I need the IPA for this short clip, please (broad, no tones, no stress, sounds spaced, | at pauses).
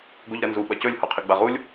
ɡ o ʎ ɾ ɐ n z u ɓ ɐ c ɵ lʲ h o qʰ i ɡ͡b a ʁ u lʲ